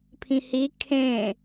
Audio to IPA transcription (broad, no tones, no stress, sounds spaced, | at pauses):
pʰ ĩ h i kʰ ẽ